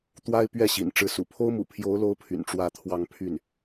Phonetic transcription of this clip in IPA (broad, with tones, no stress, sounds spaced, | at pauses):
t̪ w a˥ ɪ̯ p ɥ ɛ˥˩ ɕ ḭ˨˩ n ʈ͡ʂ ɻ̩˧˥ s ṵ˨˩ pʰ o˥ ʊ̯ m ṵ˨˩ pʰ j o˧˥ ʊ̯ l o˧˥ ʊ̯ pʰ y̰˨˩ n ʈ͡ʂ w ä˥˧ t̪ʰ w ɑ˥˧ ŋ pʰ y˥˩ n